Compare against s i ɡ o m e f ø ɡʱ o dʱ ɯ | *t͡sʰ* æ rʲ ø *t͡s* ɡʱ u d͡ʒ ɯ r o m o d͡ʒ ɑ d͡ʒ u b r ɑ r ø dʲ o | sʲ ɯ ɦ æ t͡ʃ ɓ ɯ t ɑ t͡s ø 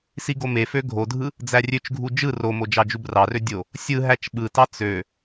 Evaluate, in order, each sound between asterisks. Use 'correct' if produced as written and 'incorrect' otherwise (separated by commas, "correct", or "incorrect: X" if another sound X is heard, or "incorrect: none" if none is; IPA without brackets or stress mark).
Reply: incorrect: d͡z, incorrect: t͡ʃ